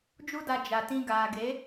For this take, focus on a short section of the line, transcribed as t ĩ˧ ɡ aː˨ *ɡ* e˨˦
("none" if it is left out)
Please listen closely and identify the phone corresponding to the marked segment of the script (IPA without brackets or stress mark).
ɡ